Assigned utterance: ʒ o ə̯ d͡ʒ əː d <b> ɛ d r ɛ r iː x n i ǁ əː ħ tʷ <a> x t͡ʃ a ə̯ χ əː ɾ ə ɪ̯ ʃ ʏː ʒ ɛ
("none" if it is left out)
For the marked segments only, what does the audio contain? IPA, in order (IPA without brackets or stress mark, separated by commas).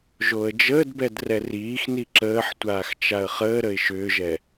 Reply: b, aː